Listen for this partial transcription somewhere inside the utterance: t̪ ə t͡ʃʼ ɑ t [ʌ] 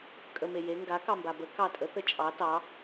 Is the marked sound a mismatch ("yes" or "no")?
yes